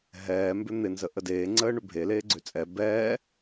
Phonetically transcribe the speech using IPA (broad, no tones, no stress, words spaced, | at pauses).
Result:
ɦɛː mbʏn̪ɪ nzəʔədeː ŋ͡ǀəːɳʏbʱe leːɡ͡ǀøt͡sʼɛ bɛː